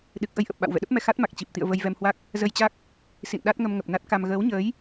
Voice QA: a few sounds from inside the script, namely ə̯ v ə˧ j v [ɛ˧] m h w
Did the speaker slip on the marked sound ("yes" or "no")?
no